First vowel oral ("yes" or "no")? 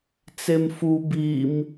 yes